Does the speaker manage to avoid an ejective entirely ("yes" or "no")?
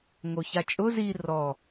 no